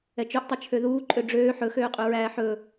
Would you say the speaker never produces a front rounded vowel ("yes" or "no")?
no